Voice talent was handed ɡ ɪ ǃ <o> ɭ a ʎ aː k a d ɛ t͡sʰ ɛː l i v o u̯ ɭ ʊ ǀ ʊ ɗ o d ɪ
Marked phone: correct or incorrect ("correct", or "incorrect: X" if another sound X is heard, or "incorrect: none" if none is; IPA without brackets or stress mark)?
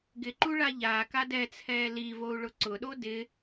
incorrect: u